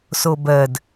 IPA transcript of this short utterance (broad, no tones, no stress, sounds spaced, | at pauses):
s o b ɜ d